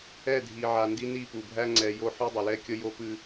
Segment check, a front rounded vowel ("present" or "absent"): absent